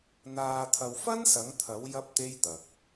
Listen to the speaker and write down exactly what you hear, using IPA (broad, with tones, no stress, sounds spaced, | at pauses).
n̪ aː˨ t̪ʰ ɐ˨ w f ɐ˥ n s ɐ˨˥ ŋ t̪ʰ ɐ˨˥ w j ɐ˥ p̚ t̪ e˥ j t̪ ɐ˨ k̚